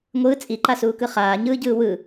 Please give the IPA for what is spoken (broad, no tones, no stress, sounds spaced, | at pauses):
ŋʷ ɯː t͡sʼ i ǃ a s uː k ɯ χ aː ɲ ɯː ɟ ɯː w ɯ